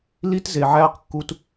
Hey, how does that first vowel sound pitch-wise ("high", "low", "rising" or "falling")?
high